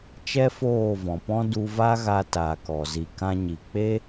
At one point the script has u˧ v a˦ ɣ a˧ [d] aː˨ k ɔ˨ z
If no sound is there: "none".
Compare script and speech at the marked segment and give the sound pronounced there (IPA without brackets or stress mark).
t